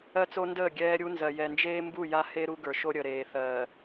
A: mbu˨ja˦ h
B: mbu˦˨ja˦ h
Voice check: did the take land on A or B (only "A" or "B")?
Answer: B